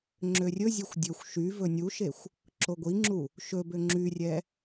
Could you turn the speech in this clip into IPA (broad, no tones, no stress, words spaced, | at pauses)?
ŋ͡ǁørʲɵzʲɛxʷ dʲɵxʷ ʃy vɵnʲuʃexʷ | ǁoɡʷiŋ͡ǁu | ʃɵbø ŋ͡ǁyrʲɛ